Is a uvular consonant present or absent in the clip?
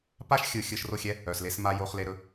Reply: present